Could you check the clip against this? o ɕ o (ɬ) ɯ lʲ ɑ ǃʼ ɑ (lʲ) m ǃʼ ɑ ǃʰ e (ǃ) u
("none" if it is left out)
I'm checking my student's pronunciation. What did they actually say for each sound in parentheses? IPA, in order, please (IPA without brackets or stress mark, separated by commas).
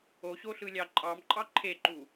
ɬ, none, ǃ